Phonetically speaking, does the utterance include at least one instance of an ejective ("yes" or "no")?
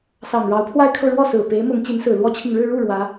no